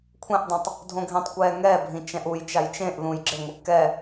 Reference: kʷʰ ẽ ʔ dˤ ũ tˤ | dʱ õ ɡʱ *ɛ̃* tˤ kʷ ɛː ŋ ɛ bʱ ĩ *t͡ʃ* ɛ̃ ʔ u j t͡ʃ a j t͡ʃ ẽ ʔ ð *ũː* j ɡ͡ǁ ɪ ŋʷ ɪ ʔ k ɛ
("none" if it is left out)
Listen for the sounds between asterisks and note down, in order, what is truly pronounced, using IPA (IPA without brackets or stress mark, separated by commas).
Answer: ẽ, t͡ʃ, ũː